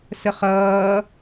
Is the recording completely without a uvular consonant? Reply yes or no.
no